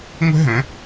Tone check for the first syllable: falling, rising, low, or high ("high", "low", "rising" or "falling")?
high